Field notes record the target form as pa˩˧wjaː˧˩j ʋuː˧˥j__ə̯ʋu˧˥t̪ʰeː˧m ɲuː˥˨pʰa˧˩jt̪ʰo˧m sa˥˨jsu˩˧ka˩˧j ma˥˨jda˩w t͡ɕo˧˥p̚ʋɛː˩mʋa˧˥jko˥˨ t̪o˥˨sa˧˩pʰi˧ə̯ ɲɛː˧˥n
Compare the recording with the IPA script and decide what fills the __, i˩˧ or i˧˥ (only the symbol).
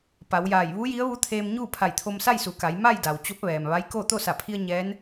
i˧˥